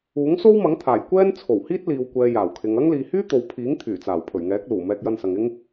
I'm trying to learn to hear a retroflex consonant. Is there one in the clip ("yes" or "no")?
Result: no